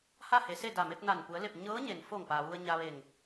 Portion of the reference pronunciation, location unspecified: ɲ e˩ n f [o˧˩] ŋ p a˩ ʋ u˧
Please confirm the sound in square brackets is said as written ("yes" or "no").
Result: yes